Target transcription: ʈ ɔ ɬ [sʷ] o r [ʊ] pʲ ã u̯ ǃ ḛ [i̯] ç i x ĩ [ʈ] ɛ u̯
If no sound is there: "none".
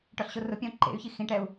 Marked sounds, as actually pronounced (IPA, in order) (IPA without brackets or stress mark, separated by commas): ɕ, ʊ, y̯, ʈ